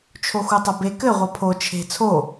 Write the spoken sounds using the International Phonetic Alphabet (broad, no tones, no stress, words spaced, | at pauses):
t͡ʃʰoxutˤɐbe kɘ ʁʷɐpʰo t͡ʃʰe̤ t͡sʰo